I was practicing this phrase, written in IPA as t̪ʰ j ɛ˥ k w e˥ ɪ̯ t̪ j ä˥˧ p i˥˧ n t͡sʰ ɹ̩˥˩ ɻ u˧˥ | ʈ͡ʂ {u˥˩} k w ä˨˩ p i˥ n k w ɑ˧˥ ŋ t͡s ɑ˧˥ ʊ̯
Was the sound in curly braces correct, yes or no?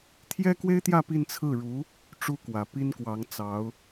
no